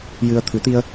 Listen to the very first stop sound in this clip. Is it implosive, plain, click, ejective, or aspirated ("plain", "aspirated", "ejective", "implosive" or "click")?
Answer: aspirated